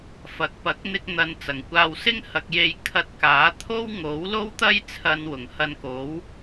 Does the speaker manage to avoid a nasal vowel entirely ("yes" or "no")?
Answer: yes